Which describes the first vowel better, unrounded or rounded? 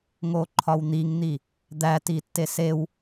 rounded